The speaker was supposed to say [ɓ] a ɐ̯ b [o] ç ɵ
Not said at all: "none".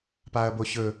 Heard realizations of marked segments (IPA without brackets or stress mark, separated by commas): p, o